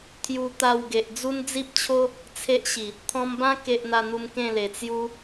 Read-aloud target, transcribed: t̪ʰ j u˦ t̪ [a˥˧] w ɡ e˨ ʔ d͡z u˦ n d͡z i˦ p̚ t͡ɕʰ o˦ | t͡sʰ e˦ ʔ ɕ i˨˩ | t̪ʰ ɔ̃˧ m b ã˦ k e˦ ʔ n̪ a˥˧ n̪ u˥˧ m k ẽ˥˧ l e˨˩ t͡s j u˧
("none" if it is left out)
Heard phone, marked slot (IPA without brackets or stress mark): a˥˧